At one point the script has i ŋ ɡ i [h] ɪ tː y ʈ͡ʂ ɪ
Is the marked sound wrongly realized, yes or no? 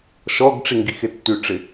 yes